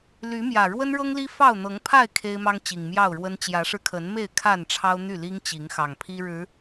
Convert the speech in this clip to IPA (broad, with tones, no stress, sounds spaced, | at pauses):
l y˨˦ m j ä˨˩ ɻ w ə˦ n ɻ ɤ˦ ŋ l i˦ f ɑ˥˨ ʊ̯ n̪ ɤ˨˦ ŋ pʰ a˥˨ ɪ̯ kʰ e˦ ɪ̯ m ɑ˦ ŋ t͡ɕ i˨˩ ŋ m j ɑ˥˨ ʊ̯ ɻ w ə˦ n t͡ɕ j ä˨˦ ʂ ɻ̩˧ kʰ ə˨˦ n m e˥˨ ɪ̯ kʰ a˥˨ n ʈ͡ʂʰ ɑ˦ ʊ̯ n̪ y˥˨ l i˦ ŋ t͡ɕ i˨˦ ŋ x ɑ˨˩ ŋ pʰ i˦ ɻ ɻ̩˨˦